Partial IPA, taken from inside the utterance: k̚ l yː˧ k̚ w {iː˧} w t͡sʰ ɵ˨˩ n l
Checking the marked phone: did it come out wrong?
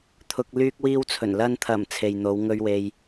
no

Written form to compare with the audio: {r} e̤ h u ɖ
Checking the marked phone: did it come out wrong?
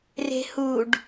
no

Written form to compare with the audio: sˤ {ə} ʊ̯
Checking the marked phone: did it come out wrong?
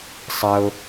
no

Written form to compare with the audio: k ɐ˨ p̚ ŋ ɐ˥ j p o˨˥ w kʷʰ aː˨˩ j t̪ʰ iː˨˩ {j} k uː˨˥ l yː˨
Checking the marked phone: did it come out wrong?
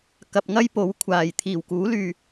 yes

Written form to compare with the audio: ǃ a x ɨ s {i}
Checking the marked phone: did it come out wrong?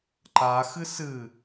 yes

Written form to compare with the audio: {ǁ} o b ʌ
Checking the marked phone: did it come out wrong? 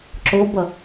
no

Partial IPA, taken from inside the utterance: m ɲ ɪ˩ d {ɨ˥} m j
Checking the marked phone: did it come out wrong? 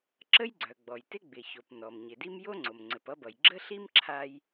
yes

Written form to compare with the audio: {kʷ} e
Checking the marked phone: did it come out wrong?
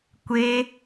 no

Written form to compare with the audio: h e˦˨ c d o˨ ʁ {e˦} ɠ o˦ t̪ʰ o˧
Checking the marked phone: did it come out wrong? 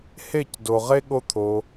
no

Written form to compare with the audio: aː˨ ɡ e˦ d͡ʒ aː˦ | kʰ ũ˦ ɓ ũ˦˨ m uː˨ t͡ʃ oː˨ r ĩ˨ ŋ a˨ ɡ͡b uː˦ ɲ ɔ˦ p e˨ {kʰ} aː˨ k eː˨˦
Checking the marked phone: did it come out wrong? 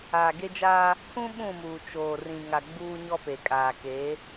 yes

